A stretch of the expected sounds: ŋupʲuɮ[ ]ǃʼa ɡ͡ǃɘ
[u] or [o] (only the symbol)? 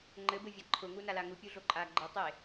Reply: o